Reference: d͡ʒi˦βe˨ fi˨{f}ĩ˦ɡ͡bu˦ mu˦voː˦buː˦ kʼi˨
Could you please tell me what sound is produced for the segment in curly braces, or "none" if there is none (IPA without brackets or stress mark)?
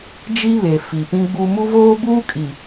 p